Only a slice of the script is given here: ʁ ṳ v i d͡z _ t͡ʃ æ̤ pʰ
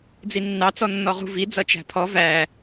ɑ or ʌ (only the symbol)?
ʌ